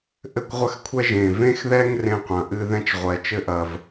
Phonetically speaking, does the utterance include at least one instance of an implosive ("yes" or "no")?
no